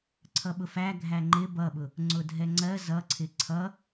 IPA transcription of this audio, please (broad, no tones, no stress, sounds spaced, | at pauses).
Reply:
ǀʰ ʌ ɓ ʊ f æ ɡʱ æ ŋ͡ǃ ɪ b ʌ ɓ ʊ | ŋ͡ǀ ʊ dʱ ɛ ŋ͡ǀ ɜ z ʌ ǀʰ ɪ ǀʰ ʌ